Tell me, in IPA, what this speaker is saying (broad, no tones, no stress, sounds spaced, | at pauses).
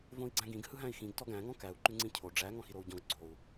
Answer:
v õ i̯ ɡ͡ǀ æ̃ ɡ ĩ ɡ h ɯ ɦ æ̃ i̯ x ĩ ɡ t ɔ ɡ æ̃ ŋ ɔ̃ k æ u̯ ǃ ʉ ŋ͡ǀ ĩ cʰ o ɖ͡ʐ æ ŋ ɔ̃ x i ɾ o u̯ ɟ ɔ̃ ɡ ɡ͡ǀ o u̯